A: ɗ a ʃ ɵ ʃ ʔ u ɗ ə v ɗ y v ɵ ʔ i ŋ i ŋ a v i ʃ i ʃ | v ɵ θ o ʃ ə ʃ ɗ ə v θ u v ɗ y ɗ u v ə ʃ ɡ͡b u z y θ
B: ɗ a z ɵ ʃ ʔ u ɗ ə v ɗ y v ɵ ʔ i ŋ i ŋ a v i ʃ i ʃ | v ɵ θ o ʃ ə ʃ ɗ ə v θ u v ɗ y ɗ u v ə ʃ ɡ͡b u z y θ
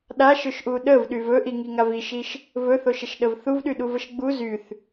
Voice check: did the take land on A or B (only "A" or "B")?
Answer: A